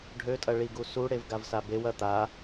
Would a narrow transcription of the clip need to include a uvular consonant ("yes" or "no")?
no